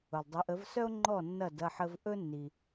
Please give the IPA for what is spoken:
ʊ˩ lˠ dˤ ʊ˩˥ ʔ ə˩˥ v s œ˥ o̯ ŋ͡ǃ ɔ˥˩ nː ɐ˥˩ d ɐ˥˩ ħ ə˧ v ʔ ɵ˥ nː i˩

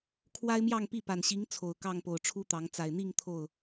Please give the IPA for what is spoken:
kʰ w a˦ ɪ̯ m j ɑ˥˨ ŋ p i˥˨ p a˨˩ n ɕ i˨˦ ŋ t͡sʰ o˨˩ ʊ̯ k ɑ˥˨ ŋ p o˨˩ ʊ̯ ʈ͡ʂʰ u˦ t̪ ɑ˨˦ ŋ t͡s a˨˩ ɪ̯ n̪ i˥˨ ŋ t̪ʰ o˥˨ ʊ̯

